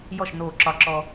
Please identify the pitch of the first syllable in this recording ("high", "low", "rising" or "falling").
falling